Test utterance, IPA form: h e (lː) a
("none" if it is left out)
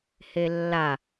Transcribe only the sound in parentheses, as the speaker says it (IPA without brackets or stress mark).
lː